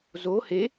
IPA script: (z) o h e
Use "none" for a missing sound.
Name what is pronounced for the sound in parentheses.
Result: z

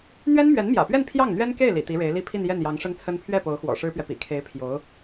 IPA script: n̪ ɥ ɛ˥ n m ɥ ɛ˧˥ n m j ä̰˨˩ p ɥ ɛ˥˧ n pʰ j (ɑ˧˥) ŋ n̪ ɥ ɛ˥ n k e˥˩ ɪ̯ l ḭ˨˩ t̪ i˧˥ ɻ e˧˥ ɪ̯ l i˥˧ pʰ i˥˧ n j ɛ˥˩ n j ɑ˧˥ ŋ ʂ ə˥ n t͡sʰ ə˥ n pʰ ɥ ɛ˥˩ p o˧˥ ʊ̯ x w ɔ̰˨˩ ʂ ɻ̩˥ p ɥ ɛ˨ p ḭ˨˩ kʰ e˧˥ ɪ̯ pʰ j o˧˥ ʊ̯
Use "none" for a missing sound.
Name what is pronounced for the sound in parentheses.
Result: ɑ˥˩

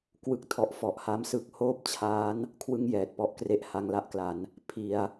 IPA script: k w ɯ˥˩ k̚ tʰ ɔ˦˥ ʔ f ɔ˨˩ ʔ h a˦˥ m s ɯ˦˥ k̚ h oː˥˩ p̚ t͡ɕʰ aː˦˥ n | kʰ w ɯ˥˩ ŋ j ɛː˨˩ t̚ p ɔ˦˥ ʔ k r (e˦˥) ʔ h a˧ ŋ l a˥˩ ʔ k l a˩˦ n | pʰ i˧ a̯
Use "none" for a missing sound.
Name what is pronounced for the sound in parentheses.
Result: e˦˥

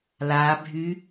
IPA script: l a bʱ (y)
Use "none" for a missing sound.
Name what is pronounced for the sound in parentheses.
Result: y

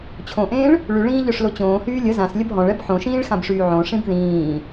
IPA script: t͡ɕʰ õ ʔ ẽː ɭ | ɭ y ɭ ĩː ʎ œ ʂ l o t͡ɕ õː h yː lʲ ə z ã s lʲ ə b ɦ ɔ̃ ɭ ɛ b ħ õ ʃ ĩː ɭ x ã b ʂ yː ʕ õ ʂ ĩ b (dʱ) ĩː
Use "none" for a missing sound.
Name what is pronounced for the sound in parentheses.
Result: ð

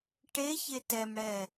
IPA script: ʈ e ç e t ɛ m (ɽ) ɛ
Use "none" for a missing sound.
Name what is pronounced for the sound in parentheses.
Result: ɽ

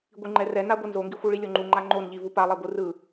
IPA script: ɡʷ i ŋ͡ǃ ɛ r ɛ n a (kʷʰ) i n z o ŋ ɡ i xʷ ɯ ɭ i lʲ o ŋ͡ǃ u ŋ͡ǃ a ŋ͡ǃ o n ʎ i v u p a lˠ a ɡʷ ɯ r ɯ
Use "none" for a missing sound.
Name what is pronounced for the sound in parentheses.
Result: ɡʷ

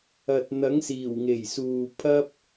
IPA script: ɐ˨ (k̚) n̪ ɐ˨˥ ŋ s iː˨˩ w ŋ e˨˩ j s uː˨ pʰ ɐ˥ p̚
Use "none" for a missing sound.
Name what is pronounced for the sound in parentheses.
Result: t̚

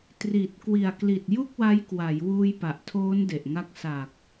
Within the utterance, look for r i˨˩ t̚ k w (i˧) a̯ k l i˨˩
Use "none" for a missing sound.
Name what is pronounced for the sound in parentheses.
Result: i˨˩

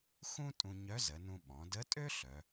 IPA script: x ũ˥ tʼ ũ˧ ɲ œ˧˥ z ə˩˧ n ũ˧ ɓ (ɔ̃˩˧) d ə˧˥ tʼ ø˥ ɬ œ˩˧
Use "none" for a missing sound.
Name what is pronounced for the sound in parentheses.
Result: ɔ̃˩˧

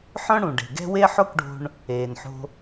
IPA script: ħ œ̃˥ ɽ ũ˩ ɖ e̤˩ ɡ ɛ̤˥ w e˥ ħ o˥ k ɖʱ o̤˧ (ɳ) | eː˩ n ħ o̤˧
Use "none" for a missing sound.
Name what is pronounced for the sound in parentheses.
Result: ɳ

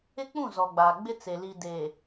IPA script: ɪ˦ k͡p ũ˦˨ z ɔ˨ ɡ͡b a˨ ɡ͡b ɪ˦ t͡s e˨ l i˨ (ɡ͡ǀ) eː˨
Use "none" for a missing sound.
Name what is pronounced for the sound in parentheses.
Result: d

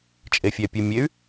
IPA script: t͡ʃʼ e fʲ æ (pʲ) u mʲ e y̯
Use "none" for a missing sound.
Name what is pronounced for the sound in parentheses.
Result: pʲ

